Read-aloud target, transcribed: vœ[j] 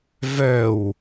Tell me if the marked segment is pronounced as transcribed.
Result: no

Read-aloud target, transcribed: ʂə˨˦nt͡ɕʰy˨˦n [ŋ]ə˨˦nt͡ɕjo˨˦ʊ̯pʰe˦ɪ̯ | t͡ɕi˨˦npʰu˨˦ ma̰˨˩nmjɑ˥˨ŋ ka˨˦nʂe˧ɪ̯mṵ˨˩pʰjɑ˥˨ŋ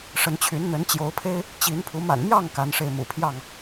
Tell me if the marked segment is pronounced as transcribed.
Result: no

